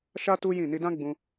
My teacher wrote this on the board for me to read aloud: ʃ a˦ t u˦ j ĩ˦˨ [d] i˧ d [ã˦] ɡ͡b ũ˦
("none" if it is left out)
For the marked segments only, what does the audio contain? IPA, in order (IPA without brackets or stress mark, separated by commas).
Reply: n, ã˦